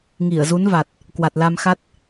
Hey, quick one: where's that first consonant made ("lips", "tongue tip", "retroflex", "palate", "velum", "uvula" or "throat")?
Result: velum